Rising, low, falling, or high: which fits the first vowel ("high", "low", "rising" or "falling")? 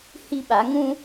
high